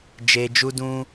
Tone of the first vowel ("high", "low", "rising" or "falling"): low